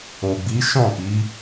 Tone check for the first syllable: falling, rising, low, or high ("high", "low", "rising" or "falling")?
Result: low